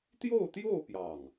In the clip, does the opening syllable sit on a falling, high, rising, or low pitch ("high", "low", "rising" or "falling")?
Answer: falling